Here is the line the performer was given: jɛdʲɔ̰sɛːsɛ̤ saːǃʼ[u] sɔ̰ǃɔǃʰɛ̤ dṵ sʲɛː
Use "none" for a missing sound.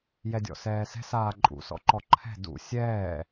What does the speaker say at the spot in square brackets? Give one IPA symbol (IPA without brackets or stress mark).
ṵ